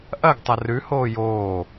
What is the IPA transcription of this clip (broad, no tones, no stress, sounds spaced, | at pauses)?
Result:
ʔ ɐ ɡ tˤ ɐ r ʉ h oː j oː